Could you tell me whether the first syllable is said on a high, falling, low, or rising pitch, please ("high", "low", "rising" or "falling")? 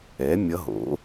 rising